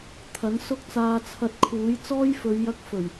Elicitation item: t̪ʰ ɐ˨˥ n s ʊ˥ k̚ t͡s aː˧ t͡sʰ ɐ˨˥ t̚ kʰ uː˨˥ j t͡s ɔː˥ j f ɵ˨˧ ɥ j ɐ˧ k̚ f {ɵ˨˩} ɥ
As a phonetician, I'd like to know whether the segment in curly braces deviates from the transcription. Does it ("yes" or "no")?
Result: no